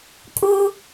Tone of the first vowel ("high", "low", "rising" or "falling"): high